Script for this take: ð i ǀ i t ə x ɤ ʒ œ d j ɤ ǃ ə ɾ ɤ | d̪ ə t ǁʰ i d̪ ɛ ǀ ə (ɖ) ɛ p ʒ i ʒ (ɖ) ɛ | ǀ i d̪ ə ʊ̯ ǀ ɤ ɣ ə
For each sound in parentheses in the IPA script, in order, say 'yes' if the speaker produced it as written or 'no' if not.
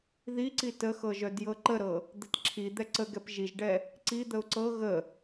no, yes

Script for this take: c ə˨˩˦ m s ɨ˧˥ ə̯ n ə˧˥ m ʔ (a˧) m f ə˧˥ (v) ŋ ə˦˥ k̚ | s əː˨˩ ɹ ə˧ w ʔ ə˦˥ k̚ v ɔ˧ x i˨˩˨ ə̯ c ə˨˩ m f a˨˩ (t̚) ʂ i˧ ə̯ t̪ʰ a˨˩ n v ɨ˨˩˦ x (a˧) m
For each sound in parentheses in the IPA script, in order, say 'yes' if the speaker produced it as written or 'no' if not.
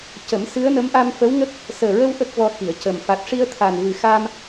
yes, no, yes, yes

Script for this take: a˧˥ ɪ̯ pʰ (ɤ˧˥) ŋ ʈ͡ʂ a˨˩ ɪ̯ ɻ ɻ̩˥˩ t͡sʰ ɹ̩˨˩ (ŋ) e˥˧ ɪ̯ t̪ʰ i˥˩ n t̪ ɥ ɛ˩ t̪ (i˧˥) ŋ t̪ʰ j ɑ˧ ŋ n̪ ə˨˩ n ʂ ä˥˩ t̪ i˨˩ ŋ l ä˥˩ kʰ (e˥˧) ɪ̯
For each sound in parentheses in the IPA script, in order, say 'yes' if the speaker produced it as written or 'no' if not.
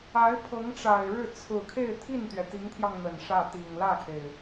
yes, no, yes, no

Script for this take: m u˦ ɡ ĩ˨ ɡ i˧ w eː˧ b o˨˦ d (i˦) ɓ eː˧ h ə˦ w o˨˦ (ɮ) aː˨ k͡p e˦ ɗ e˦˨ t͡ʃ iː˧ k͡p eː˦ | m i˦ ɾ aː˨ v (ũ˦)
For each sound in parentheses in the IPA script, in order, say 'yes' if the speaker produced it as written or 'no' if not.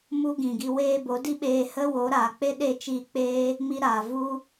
yes, no, no

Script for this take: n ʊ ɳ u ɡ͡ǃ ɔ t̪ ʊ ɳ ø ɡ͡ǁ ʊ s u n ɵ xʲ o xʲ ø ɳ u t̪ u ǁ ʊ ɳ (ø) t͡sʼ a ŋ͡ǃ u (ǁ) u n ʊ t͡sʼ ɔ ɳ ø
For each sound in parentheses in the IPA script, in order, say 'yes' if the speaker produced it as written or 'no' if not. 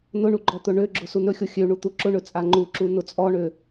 no, yes

